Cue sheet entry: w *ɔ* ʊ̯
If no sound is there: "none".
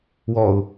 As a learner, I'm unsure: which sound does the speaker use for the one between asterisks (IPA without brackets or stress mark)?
ɔ